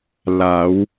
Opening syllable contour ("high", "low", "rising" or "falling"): rising